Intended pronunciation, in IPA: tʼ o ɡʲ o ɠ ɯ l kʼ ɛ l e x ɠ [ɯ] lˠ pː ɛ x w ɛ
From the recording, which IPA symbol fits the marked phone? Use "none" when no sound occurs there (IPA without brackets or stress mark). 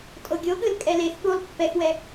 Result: u